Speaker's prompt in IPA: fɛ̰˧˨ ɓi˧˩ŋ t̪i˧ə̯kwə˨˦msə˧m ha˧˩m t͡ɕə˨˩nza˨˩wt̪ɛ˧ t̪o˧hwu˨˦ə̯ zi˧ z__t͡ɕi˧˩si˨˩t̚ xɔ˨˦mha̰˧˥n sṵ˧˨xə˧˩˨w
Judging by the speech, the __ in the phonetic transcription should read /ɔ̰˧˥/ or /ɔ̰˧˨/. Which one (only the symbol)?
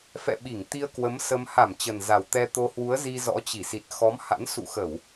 ɔ̰˧˥